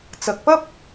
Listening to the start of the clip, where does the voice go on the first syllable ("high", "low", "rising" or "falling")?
low